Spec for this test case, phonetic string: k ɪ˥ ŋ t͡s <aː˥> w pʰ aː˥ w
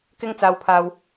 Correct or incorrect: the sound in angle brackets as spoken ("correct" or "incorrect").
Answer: correct